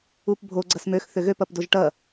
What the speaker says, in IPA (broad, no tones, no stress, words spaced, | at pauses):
upbʱo ɡ͡ǀɐsmøx θʏɣøp ɐpdoʒʈɐ